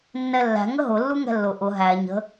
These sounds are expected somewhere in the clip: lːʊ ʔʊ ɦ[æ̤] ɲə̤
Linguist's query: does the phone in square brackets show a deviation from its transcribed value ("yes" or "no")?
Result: yes